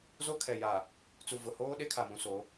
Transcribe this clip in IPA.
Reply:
z o˦ kʰ ɛ˨ j a˨ | t͡s u˨ v ʊ˨ h oː˦ ɗ e˦ kʰ a˨ m ũ˨ s o˨˦

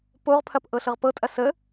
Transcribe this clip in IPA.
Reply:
p o ʁ pʰ ɐ p ʔ ɤ ɬ ɤ ʁ p ɤ tʼ ɐ s ə

